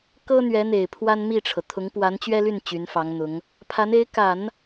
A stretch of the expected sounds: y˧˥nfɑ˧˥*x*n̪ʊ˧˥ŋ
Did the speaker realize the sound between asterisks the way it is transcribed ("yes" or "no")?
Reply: no